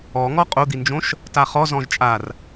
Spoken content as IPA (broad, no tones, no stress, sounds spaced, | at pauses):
ɔ ŋ ɔ qʼ o d̪ i n d͡ʒ õ ʃ | t a χ ɔ z ɔ̃ ʒ t͡ʃʼ a r